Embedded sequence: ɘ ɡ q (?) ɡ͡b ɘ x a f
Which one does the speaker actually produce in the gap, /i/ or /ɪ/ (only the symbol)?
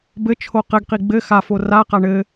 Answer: i